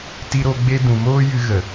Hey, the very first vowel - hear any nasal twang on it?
no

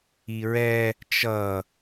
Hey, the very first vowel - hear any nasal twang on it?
no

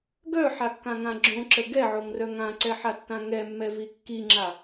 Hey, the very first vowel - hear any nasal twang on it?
no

